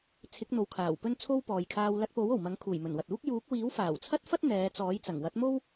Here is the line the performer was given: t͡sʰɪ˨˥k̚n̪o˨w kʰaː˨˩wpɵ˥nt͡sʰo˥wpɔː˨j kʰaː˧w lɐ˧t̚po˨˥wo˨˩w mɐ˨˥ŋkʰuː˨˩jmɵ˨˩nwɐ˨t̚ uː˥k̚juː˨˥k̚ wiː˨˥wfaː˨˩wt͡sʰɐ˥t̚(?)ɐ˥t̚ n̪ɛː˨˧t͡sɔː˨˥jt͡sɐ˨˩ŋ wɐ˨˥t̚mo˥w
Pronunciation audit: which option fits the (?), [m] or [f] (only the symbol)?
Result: f